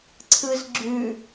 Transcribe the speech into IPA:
ǀʰɯzɡ͡ǁʉ

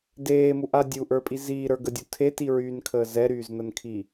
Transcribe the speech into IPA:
deːmuʔa dʲuʔə˞pʼi ziːɾə˞ɡədʲu tʰetiɹyːnkʰəː zɛɾyːznənkʰi

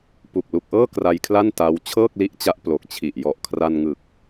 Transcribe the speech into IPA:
pu˨˩k̚lu˨˩k̚ʔɤː˥˩ kra˧jkʰla˥˩n ta˦˥w t͡ɕʰɤː˥˩k̚li˦˥ʔt͡ɕa˦˥ʔ plo˨˩k̚t͡ɕʰi˨˩ʔ jɔ˨˩ʔkʰra˧nŋɯ˨˩k̚

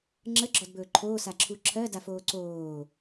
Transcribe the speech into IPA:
ŋ͡ǁəɡ͡ǁɔdbɵː ǃʰoːsaǁʰu ǁʰɜdafoː ǀoː

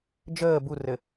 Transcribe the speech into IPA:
d͡ʒəː burɘ

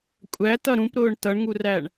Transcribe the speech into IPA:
kʷʼætʌ ɾũpɾʊːɳ tʌɳŋuræɳ

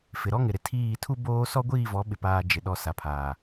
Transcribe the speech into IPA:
fɪ˨ɾɔ˦ŋɪ˨ɾɪ˨ tʰiː˦˨ tʰu˦ boː˦ sɔ˦ɡʷiː˦˨vɔ˨˦ɓɪ˨ paː˨ d͡ʒɪ˨ ɗɔ˨ sa˨pʰaː˨

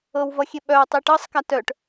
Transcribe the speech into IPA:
ɤwvʌxʲe ɓœwtˤi ʈɤsˤka tœʈ

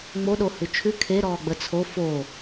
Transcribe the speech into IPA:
ŋ͡moɗo hʉt͡ʃʰʉ kʰe ɾɔːɡ͡bət͡sʰo fo

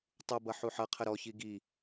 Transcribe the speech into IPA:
tˤubʌ ħuħʌqʰə ɾɔçi ɡi

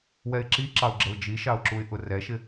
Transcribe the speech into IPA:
wɛɪ̯ǁiǁɑʊ̯ɡ͡ǁəʊ̯ d͡ʒiʃɑʊ̯ǁuɪ̯ʔʊ rɛʃɪ

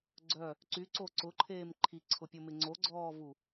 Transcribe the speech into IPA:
ɡ͡ǀœ | ǀyǀo ǀʊǃʰeːm ǃʰiǀʰʊpʲomɪ ŋ͡ǀoɡ͡ǀɔːvu

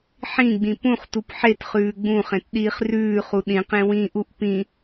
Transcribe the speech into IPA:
ħĩɡ͡bĩ pũχtup ħet χʉːɡ͡bũχẽt ɗiːχrʉːχu ɗĩq ẽwĩʔuʔ pĩ

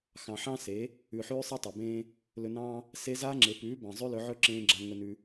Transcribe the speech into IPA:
xɑ̃˨ħɑ̃˦se˨˦ | ʉ˨ħʉː˧ sˤe˦tˤe˨bẽː˦ | lɵ˧nɑ̃ː˦ | se˧ za˧ ŋ͡ǁe˨pʉː˨˦ bɑ̃˨zˤʉ˦lɵ˧ʕɵ˦ ǁẽː˧ɡ͡ǁa˧ ŋɵ˧nʉ˧

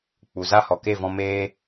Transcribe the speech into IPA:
k͡pu˨za˦ hɔ˨ke˦˨ vɔ̃˧meː˦

